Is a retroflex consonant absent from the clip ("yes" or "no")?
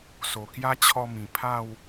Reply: yes